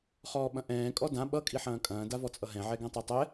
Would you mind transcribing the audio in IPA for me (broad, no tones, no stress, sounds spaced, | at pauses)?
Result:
χ ɔː ɓ ɐ̃ ʔ ɛ̃ː kʼ ɔ d ã ɓ ʌ kʼ i ħ ɐ̃ː kʼ ɐ̃ː d a v ɔ t͡sʼ ʌ ɦ ɛ̃ ʕ ɛ ɡ ɛ̃ tˤ ɤ tˤ ɛ